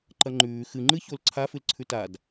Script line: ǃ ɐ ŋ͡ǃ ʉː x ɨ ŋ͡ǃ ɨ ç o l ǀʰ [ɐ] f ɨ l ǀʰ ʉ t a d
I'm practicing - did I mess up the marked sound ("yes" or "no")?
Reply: yes